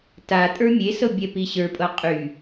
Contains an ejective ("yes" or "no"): yes